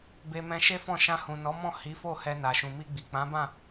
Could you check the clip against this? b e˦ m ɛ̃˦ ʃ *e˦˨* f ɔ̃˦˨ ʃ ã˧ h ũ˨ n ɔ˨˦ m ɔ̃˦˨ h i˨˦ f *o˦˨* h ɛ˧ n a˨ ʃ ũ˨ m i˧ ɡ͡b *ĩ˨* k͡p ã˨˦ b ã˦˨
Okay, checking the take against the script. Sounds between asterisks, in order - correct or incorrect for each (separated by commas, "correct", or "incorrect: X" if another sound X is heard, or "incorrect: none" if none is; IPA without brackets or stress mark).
incorrect: e˦, correct, incorrect: i˨